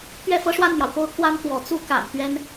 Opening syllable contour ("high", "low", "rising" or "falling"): falling